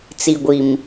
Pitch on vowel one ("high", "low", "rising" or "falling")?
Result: low